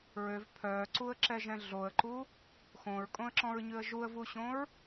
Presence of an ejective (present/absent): present